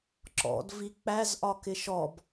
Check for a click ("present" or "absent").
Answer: present